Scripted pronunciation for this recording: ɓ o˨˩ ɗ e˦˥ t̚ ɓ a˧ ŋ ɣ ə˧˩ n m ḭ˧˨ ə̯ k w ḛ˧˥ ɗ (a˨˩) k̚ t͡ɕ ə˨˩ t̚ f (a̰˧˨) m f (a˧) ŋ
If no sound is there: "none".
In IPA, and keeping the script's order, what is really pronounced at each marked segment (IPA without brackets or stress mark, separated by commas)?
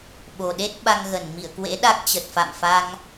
a˦˥, a̰˧˨, a˧